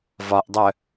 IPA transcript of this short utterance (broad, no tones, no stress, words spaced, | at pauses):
vɒʔdˤœ